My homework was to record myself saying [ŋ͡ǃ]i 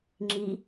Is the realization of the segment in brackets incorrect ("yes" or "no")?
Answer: yes